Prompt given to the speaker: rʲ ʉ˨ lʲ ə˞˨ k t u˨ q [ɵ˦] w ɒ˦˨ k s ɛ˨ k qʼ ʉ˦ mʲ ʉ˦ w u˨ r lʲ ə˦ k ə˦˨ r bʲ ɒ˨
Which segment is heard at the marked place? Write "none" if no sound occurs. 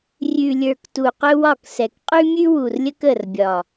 ɵ˦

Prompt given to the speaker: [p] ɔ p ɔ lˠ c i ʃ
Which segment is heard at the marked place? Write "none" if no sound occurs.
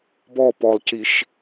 b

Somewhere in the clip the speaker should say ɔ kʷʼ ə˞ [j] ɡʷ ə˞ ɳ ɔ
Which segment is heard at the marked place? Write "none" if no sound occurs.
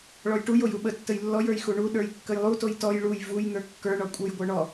j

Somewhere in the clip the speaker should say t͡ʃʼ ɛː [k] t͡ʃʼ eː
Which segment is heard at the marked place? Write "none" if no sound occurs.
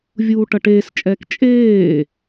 k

